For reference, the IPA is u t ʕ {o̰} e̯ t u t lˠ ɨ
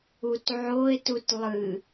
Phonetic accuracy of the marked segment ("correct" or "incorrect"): incorrect